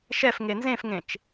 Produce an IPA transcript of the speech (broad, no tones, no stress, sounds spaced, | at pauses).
ʃ ɛ f ŋ e n z ẽ f ŋ ẽ t͡ʃ